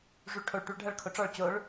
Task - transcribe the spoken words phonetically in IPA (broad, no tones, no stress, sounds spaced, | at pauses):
ʐ u ɭ ʈʰ o ɭ ʈ u ɭ ɖʱ ɐ ɭ kʰ o ʈ͡ʂ ɔ ɭ t͡ɕ o ɭ